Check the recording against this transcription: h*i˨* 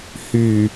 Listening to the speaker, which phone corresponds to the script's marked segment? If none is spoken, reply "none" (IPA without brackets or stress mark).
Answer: y˨